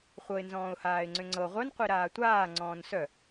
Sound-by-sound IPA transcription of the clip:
χʷ ɤ ɪ̯ n z ɔ̃ː ʊ̯ h aː ɪ̯ ŋ͡ǀ ʏ ŋ͡ǀ ɤ ʁʷ œ n qʷ i ɾ aː tʷ aː ŋ͡ǀ ɔ̃ː n s œ

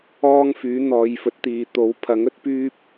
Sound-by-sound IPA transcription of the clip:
ɔː˥ ŋ f yː˨˥ n̪ ɔː˨˧ j f ɵ˨˥ t̚ t̪ iː˨ t̪ o˨˥ w pʰ ɐ˨˥ ŋ ɵ˥ t̚ p yː˥ p̚

